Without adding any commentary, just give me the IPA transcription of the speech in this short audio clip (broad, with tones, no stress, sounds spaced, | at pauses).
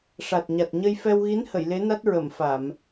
ʂ a˨˩ t̚ ɲ a˨˩ t̚ ɲ ə˧ j f ɛ˧ w ɣ i˧˥ n h ə˨˩˨ j l e˧˥ n a˦˥ t̚ ɹ ə˨˩˨ m f a˨˩˨ m